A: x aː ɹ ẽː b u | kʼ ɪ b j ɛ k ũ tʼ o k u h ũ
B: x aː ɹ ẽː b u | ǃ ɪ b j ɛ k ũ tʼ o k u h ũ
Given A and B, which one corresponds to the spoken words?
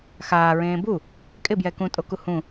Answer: A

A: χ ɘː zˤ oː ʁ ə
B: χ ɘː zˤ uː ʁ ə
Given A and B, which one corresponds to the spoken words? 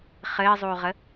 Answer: B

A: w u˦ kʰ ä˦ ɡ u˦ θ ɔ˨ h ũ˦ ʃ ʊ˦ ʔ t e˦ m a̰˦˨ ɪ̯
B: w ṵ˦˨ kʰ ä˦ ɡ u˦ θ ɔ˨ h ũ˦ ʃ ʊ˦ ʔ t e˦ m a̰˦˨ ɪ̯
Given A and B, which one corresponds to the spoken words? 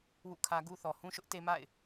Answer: B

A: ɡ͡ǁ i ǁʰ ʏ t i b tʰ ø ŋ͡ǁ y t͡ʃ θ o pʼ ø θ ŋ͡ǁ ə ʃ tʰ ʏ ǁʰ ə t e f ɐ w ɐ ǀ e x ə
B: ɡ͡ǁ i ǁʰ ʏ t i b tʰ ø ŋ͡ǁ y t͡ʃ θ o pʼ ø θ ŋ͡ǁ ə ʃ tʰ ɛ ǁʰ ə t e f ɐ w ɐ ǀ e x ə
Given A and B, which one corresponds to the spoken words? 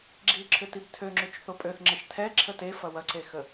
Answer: B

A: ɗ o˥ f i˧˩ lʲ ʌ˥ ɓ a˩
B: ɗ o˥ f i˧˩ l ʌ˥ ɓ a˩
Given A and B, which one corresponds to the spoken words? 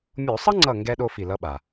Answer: B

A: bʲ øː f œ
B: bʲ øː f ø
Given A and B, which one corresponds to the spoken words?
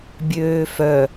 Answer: A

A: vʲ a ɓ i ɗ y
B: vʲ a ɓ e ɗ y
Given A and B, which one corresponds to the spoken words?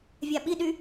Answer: A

